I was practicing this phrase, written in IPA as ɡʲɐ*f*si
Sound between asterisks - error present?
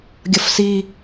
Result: no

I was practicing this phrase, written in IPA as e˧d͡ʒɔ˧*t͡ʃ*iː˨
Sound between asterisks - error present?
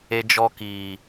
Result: yes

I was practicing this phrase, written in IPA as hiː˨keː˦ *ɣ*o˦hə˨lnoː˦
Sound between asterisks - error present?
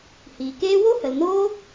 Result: yes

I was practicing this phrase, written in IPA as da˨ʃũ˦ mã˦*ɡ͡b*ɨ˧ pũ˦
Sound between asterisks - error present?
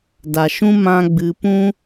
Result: no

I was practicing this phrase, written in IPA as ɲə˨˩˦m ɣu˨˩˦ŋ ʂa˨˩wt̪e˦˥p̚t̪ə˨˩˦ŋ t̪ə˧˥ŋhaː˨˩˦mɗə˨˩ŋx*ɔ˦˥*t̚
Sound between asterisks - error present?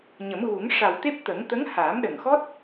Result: no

